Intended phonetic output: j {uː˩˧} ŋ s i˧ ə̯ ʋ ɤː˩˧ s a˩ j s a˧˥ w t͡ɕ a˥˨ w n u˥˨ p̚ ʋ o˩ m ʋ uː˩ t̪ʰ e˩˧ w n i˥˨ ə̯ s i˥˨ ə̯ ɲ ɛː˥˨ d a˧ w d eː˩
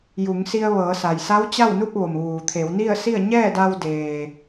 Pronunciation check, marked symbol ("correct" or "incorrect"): incorrect